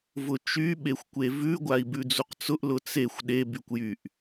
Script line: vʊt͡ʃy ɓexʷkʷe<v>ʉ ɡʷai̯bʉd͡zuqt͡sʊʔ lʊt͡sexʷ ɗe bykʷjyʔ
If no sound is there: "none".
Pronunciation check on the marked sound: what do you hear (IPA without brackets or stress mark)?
v